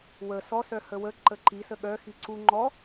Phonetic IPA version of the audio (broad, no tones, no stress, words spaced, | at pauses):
wə sɔ sœhəwə ǃəǃi səɠœ xiǀu ŋ͡ǃɔ